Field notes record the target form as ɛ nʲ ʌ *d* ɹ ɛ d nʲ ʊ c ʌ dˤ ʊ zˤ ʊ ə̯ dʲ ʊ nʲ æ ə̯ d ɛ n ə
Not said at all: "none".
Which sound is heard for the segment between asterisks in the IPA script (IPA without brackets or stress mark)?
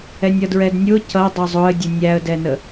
d